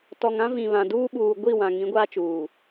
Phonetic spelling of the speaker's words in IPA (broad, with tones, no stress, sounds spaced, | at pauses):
t ɔ˨ ŋ ã˦ v ĩ˨ β ã˨ d uː˦ ɓ uː˨ ɡʷ i˦˨ w ã˨ ŋ ĩ˨˦ ɡʷ aː˦ t͡ʃ uː˨